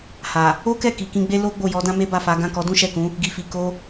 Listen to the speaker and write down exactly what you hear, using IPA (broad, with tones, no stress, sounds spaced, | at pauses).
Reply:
h a˨ | o˦ k ɛ˦˨ k i˨ k ĩ˧ ɡ͡b e˦ l o˦ ɡ͡b o˦˨ j ɔ˨˦ d ã˦ m e˦ b a˦˨ f a˨˦ ɡ ã˦˨ k ɔ˨˦ d ũ˦ ʃ ɛ˦˨ k ũ˨˦ | ɡ i˨ f i˨ k o˧